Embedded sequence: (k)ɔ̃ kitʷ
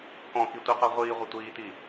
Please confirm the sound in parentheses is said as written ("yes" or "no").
yes